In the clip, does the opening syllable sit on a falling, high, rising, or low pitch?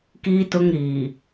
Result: high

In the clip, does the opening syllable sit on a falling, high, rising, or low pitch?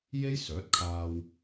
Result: high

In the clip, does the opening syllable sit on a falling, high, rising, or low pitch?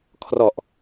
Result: low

